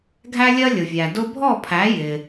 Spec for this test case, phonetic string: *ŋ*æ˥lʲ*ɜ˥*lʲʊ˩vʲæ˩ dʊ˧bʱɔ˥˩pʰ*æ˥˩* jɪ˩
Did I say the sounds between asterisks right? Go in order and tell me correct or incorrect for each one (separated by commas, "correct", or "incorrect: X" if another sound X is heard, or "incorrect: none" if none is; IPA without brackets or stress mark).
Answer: incorrect: ɡʱ, correct, incorrect: æ˩˥